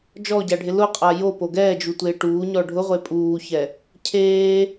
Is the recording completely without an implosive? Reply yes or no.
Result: yes